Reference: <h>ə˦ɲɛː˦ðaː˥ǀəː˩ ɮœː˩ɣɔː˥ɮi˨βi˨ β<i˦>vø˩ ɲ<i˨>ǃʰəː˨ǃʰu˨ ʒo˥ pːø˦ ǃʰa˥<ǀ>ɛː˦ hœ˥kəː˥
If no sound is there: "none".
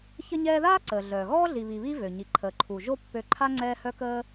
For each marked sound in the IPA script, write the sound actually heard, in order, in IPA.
ç, i˦, i˨, ŋ͡ǀ

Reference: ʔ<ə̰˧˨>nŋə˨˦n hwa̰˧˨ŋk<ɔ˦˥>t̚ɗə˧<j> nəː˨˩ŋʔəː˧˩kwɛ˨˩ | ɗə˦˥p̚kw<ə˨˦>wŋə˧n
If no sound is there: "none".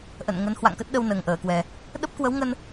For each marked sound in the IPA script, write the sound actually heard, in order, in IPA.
ə̰˧˨, ə˦˥, w, ə˨˦

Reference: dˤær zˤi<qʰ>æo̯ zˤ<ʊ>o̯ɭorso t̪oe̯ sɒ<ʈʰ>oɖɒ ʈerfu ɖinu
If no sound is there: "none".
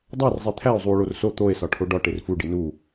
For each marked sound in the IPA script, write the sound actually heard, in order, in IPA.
t̪ʰ, u, ʈʰ

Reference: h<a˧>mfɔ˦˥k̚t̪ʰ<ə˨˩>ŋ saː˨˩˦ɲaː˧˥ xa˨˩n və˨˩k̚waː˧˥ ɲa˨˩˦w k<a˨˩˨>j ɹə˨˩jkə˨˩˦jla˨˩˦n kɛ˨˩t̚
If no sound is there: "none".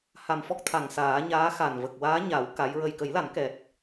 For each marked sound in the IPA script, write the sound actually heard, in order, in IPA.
a˨˩, a˨˩, a˧˥

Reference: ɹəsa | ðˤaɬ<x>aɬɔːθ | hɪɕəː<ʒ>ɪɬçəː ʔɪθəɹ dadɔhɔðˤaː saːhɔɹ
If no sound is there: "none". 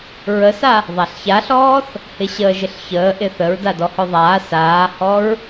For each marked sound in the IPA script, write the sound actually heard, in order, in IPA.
ç, ʒ

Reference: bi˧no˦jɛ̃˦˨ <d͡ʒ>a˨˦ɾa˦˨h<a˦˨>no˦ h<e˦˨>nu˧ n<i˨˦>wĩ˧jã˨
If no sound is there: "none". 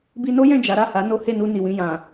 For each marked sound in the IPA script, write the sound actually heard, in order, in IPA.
d͡ʒ, a˨˦, e˦˨, i˨

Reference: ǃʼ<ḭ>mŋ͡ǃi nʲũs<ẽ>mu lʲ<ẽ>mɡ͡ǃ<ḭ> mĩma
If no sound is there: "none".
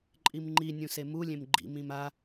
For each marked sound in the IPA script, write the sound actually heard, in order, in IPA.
i, e, ẽ, ḭ

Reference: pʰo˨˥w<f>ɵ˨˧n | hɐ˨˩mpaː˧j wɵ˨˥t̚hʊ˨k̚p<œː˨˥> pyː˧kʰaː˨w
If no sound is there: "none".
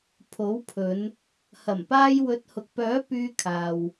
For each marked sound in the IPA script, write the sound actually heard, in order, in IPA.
pʰ, œː˨˥

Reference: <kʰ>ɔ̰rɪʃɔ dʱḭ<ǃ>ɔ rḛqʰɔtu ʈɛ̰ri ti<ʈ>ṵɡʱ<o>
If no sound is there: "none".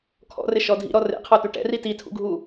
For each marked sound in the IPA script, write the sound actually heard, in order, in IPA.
kʰ, ɾ, tʰ, u

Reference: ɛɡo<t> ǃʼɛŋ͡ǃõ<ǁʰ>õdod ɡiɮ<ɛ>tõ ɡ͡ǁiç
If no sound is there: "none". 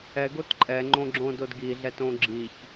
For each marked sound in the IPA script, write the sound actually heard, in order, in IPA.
t, ɡ͡ǁ, ɛ

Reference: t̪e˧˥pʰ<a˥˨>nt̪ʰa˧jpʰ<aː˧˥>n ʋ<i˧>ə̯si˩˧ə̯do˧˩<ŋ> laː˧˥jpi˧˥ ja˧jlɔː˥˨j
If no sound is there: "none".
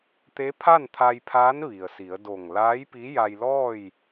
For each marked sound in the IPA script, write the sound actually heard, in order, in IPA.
a˥˨, aː˧˥, i˩, ŋ

